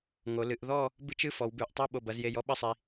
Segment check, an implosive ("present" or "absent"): present